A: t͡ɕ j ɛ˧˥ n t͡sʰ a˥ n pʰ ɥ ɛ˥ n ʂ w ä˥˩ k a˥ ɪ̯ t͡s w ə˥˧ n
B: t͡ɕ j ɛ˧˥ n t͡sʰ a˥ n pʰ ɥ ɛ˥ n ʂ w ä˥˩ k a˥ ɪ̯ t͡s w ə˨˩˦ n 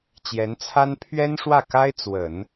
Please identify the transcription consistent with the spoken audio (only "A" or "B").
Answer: B